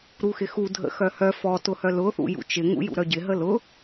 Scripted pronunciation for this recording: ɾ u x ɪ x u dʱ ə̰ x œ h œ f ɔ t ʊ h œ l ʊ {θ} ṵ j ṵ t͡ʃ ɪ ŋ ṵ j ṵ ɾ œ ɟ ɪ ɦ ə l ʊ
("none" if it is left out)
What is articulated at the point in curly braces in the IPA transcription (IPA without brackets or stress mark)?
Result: θ